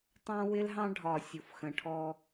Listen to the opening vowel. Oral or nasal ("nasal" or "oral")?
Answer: nasal